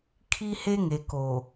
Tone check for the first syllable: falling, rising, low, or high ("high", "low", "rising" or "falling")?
high